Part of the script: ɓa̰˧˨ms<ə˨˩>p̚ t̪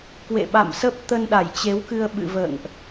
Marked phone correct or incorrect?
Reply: incorrect